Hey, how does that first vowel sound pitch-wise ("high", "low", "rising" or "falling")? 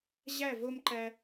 falling